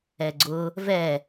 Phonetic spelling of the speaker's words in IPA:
ɛɡ͡ǀʊ | vɛ

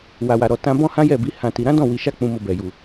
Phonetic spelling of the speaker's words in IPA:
wa˨wa˨ɾɔ˨ tã˧ bɔ̃˦hã˦jɛ˦˨bi˨˦ hã˧ ti˧ ɾã˦dɔ̃˦˨ wi˧ʃa˦ k͡pũ˧mo˧bɛ˨ ju˨

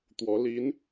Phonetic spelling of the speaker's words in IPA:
t̪wɔ˧˥ li˧˥n

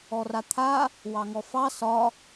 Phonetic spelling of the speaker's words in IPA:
ɔrat̪ʰa | wɑŋɔfɑ sɒ

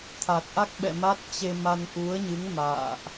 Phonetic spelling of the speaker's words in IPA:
t̪ʰa˨˩t̚ʔa˦˥k̚ɓɛ̰˧˨ma˦˥t̚ t͡ɕe˧ma˧n ʔu˨˦ə̯ɲɨ˨˦ŋ ma̰ː˧˨ʔ

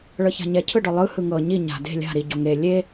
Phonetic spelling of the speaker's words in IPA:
ɭɤça̤ɲɛ cʰɯɖɔlˠɯ hɯŋɤ ɲi ɲa̤ de̤ lʲa̤ ɾi ɟɔŋe lʲe

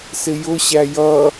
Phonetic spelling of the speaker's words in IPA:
sɪjʊ ɕæjʌ

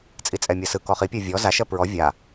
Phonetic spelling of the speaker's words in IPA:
t͡sʼit͡sʼɛmʲɜsɯ kɔχipʲɜ vʲɔ zaʃɜ pɹɔ vʲa

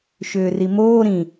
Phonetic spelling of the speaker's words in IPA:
ʃʏːrimoː ɾĩ

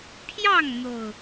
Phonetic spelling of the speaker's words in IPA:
pʰjɑ˥˨ŋn̪o˨˩ʊ̯

